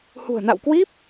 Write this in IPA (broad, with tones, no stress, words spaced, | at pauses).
hṳ˨˩ə̯na̰˧˨wkwi˦˥p̚